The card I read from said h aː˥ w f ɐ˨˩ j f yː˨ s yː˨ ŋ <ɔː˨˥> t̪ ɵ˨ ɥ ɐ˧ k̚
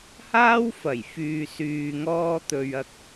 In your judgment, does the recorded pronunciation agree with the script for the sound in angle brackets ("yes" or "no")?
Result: no